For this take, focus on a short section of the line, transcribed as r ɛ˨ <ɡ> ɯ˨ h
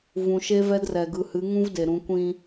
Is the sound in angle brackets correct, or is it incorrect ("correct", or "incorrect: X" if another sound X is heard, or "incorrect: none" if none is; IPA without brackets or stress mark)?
correct